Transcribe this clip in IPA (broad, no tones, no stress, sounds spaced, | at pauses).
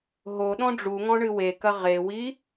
ɦ o ɗ ɔ̃ ɖ͡ʐ u ŋ ɔ̃ ɳ ɨ w e k ɐ ʁ e w i